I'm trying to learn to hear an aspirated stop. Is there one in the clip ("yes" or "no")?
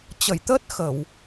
no